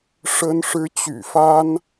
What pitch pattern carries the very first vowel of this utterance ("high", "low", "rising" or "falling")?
high